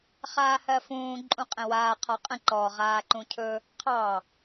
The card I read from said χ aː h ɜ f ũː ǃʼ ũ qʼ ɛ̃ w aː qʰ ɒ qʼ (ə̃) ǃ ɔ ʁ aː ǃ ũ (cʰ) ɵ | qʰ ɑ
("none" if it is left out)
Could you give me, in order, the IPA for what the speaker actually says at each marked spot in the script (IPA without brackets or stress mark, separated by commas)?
ə̃, cʰ